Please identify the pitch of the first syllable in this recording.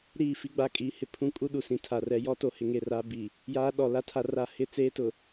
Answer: falling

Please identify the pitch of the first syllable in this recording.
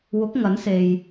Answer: rising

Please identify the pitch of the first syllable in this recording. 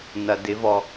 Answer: low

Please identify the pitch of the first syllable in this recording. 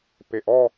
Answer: low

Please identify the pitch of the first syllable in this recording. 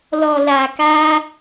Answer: low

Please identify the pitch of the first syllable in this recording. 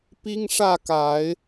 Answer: high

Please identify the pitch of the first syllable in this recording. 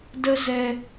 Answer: high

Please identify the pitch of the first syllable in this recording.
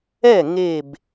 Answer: falling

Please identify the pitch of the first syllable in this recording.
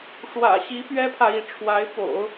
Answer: low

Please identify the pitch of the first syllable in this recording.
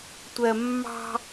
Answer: low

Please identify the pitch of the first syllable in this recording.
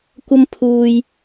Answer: high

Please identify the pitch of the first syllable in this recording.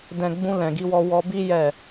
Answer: low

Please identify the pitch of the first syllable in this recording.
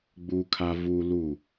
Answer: high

